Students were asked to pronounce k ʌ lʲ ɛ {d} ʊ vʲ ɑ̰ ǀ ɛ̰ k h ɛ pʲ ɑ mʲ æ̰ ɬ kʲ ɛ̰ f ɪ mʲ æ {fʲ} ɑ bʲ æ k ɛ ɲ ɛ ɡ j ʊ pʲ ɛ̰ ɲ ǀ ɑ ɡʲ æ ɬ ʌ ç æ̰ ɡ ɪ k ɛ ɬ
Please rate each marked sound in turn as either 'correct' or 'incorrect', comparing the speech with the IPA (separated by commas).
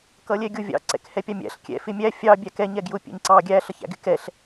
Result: incorrect, correct